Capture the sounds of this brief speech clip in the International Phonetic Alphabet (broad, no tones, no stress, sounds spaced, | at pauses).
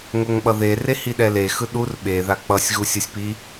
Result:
ŋ o ŋ ɓ ʌ ð e r e h i ɗ ɛ l e x ɯ ɗ u r ɓ e ð a k͡p ʌ sʲ ɣ u sʲ ʌ sʲ p i